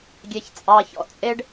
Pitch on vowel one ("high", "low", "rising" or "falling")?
low